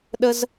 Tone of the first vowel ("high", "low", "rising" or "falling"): high